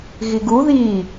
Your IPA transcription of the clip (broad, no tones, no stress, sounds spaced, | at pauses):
ɣ i ɡ u ð i